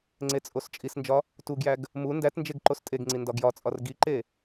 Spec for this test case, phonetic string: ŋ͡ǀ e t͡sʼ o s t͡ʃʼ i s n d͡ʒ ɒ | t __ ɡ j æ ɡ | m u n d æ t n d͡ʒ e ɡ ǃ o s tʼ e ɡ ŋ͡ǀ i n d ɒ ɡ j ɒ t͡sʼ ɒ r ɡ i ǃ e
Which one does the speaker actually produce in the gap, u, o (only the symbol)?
u